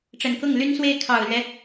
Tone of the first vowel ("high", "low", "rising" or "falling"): low